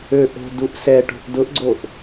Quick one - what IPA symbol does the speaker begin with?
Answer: ø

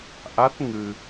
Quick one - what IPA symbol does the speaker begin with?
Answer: ʔ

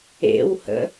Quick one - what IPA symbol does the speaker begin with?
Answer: ḛ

